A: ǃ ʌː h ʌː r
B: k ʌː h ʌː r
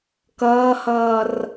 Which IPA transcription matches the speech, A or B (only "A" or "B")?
B